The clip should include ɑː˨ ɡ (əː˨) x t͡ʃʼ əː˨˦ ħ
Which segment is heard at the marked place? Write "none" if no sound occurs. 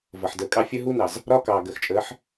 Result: əː˨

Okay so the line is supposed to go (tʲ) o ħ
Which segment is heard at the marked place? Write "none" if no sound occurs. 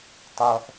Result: tˤ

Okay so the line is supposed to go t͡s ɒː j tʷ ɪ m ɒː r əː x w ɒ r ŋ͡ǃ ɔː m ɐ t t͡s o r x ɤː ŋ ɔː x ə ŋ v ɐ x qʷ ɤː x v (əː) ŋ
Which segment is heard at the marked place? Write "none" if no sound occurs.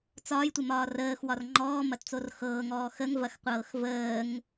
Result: əː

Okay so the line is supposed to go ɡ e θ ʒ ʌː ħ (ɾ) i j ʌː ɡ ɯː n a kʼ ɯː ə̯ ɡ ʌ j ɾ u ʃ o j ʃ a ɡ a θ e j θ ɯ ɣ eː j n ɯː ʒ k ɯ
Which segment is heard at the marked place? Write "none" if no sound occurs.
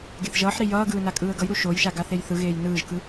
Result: ɾ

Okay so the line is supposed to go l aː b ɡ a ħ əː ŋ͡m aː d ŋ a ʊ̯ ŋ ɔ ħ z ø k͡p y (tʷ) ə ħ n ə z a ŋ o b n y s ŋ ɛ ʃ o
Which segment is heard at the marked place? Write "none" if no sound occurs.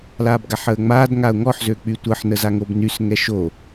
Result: tʷ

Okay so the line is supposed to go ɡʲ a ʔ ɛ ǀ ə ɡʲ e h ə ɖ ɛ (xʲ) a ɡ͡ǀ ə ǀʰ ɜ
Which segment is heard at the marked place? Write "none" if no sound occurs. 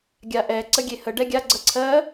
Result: ɡʲ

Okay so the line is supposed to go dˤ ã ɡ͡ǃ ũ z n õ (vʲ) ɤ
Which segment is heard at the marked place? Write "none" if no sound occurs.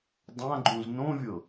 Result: vʲ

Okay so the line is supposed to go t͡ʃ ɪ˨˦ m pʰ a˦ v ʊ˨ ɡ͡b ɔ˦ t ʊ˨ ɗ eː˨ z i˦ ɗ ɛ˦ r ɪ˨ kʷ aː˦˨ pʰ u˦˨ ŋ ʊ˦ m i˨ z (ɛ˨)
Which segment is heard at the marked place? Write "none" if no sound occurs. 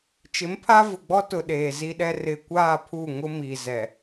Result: ɛ˨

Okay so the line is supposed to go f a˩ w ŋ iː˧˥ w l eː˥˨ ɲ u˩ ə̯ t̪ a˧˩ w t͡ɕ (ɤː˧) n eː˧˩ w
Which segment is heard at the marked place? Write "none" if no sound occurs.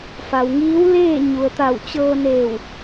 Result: ɤː˧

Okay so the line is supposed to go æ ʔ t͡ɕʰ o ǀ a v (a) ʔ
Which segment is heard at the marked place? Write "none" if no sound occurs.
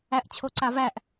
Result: æ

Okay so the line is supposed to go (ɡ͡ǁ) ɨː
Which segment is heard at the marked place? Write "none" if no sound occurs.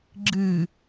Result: ɡ͡ǁ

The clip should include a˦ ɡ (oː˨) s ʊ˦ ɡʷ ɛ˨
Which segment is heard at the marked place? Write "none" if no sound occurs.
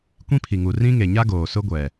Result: oː˨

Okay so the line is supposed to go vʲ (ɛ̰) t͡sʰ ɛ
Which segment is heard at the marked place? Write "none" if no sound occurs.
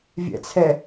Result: ɛ̰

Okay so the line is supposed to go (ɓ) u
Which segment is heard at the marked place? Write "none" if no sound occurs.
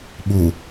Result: ɓ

